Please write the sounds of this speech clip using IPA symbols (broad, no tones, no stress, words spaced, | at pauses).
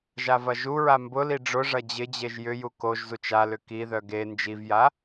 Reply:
ʒavɐʒuɹa mbʊli ɖ͡ʐʊʐɐ d͡ʑɪd͡ʑeʒ jʏju koʒzut͡ʃ alʏ kiðœ ɡe nd͡ʒivja